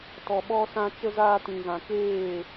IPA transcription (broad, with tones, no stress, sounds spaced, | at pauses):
t ɔ˨ ɓ ɔ˧ s ã˧ t͡ʃ ə˧ z aː˧ t ĩ˨ ɣ ã˨ k eː˦˨